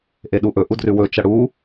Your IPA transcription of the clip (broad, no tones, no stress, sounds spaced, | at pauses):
ʔ e ɗ u ʔ ɵ ʔ u d r ʉ w ɵ t͡ʃ ɐ ɽ u